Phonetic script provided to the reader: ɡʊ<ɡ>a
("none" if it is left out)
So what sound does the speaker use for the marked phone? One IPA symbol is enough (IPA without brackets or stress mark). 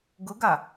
ɡ